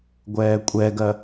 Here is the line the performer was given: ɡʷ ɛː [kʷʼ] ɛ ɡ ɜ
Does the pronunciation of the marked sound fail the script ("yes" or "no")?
no